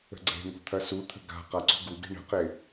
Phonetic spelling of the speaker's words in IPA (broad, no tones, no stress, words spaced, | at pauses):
ə̤ɡ͡ǀe̤ŋo̤ t̪ʰɐsut̪ʰə̤ ɡa̤ qaǀṳɡuɡe̤ ɳə̤qe